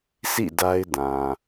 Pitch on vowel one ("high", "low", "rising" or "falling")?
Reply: falling